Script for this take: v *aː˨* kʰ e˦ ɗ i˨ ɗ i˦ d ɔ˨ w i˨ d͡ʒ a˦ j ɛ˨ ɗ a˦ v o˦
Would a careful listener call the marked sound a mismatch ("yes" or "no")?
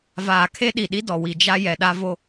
no